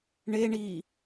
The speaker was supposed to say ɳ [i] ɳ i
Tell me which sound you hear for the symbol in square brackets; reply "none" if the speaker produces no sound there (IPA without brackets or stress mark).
e